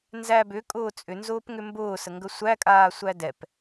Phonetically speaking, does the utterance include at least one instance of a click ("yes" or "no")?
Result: no